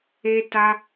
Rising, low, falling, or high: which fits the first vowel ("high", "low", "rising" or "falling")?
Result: high